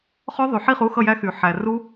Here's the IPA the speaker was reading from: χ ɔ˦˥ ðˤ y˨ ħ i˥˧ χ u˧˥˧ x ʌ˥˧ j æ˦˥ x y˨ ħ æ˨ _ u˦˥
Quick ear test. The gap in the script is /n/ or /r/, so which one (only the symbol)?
r